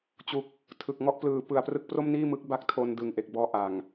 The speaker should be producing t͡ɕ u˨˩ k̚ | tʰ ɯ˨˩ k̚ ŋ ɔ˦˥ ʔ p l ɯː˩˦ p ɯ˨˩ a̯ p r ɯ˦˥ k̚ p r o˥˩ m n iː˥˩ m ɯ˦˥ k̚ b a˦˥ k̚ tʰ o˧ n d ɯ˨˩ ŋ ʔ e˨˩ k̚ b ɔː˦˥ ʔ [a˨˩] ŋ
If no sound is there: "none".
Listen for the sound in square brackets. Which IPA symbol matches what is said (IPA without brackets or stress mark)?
a˨˩